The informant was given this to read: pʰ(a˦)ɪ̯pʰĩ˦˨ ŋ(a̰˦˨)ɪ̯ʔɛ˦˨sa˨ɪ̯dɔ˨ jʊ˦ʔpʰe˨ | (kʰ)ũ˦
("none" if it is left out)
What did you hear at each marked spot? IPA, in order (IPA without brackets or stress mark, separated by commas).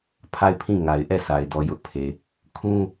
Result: a˦˨, a˨, kʰ